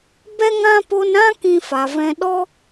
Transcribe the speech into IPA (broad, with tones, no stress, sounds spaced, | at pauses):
b ɛ˦ ŋ ã˦ p o˧ n ɾ ã˦ k ĩ˧ f a˨ v ɛ̃˧ ɗ ɔ˦